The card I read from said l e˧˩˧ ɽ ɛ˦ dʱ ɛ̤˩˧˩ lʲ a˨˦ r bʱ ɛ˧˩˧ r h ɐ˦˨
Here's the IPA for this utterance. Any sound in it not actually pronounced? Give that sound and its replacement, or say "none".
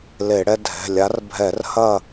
none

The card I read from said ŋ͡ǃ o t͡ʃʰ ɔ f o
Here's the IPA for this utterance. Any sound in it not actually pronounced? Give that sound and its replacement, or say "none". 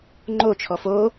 none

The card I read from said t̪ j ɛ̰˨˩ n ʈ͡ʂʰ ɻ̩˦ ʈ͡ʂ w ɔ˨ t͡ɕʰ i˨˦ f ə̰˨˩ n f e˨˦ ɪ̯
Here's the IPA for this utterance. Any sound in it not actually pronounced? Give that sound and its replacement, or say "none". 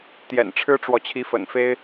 e˨˦ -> e˦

